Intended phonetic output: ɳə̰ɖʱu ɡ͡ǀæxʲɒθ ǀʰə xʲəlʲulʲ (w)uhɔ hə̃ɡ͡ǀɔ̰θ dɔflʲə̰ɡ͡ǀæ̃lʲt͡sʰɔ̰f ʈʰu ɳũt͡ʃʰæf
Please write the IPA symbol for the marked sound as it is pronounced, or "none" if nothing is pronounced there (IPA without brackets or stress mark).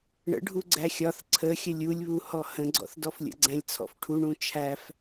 β